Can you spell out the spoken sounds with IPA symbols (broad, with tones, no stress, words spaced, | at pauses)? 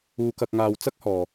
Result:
uː˧kɐ˧k̚ŋaː˧w t͡sɐ˥k̚hɔː˨